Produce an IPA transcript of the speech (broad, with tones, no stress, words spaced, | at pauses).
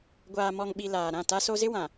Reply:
ɡʷaː˨mɔ˨ŋɓi˨ laː˨ɾã˦˨ta˦so˦ zɪ˦wã˨